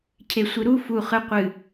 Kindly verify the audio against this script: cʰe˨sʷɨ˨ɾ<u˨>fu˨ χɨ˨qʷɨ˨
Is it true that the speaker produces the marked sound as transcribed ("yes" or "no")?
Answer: no